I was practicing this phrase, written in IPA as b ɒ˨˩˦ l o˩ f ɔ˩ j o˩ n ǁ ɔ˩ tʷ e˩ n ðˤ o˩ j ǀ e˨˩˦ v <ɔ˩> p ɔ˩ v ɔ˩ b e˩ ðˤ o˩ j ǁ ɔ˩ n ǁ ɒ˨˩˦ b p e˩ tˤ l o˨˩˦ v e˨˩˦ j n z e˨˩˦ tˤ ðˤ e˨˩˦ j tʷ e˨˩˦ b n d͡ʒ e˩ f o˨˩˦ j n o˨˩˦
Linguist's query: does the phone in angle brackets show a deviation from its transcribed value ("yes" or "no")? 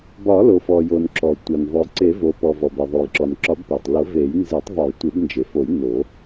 yes